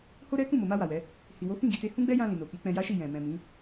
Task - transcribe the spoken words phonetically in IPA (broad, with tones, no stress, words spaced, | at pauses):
ho˦ɾɛ˦ kũ˦˨mo˨ma˧ wa˨wɛ˨˦ | hi˨wo˨˦ fĩ˦˨ɡi˧te˧ hũ˦ɡ͡bɛ˦jã˧ lĩ˨no˨ki˨˦k͡pɛ̃˧ ja˦ʃi˦˨ jɛ̃˨ mɛ̃˨ mĩ˨˦